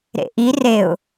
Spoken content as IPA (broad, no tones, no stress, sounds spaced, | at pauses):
ɾ ḛ ʔ i r e ʊ̯